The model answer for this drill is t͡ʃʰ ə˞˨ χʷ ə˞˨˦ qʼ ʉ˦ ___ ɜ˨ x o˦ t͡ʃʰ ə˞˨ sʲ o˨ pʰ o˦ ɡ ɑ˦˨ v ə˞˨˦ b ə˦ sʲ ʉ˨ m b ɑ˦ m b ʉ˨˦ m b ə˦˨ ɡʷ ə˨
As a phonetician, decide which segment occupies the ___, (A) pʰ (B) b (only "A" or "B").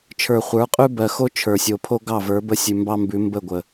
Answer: B